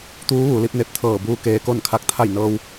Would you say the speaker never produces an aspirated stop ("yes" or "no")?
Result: no